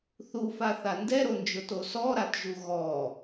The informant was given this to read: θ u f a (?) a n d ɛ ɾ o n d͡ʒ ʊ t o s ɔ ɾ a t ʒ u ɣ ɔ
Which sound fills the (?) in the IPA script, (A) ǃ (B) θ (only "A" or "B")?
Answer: B